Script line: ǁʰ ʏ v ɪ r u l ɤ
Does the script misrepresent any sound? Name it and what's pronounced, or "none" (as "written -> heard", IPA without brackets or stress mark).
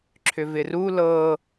none